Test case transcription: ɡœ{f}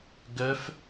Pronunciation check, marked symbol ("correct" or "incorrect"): correct